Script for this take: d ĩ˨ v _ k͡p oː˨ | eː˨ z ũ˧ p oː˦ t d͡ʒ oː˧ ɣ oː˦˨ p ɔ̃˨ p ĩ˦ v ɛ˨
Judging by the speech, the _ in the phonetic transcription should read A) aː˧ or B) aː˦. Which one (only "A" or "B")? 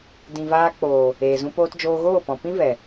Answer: A